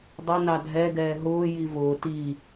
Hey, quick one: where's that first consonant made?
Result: tongue tip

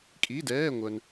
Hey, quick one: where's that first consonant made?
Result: velum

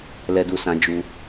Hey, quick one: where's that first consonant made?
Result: tongue tip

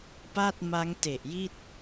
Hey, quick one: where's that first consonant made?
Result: lips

